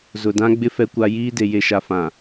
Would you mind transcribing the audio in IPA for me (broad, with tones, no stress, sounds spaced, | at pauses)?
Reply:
z ʊ˨ d ã˦ ɡ͡b ɪ˦ f ɛ˦ kʷ a˦ j iː˦ d e˨ j e˨ ʃ a˨ f ã˨